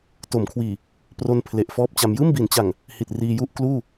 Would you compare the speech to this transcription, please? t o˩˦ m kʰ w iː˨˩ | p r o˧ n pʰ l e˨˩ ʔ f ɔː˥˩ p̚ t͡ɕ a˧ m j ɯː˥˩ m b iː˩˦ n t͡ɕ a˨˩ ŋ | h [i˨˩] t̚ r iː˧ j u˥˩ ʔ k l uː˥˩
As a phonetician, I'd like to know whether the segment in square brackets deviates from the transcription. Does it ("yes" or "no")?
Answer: no